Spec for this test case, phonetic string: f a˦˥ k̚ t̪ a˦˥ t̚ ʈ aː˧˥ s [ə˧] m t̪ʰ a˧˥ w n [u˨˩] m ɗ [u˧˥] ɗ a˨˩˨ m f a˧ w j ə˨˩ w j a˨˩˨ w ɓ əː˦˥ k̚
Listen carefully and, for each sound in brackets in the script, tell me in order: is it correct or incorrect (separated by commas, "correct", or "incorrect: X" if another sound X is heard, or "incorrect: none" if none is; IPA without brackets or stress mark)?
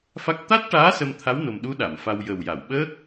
correct, incorrect: o˨˩, correct